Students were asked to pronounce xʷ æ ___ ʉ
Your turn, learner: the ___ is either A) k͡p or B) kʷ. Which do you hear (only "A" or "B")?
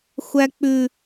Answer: A